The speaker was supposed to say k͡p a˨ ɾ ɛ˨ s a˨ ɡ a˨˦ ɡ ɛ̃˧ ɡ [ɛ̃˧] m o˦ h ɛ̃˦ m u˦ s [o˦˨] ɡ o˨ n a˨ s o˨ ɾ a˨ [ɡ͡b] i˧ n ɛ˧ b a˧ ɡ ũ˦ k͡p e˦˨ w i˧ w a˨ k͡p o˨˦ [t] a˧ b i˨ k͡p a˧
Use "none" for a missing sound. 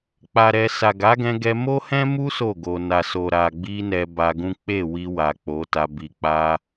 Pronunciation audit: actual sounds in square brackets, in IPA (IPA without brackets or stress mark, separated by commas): ɛ˧, o˦˨, ɡ͡b, t